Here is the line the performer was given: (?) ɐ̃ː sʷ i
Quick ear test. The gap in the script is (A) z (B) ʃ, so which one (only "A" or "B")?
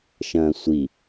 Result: B